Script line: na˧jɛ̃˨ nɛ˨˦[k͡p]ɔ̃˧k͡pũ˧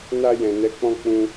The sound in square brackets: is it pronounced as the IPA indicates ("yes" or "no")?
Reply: yes